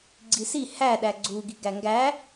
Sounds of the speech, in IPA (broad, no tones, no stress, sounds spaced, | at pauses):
ɡ͡ǀ i s i h æ ɗ æ ɡ͡ǀ u ɡ i ɡ æ ŋ ɡ æ